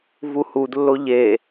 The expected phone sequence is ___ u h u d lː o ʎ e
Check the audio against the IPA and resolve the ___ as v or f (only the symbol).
v